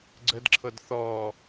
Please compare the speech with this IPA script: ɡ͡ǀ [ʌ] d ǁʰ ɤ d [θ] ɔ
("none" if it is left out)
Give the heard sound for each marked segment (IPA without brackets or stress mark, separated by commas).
ə, θ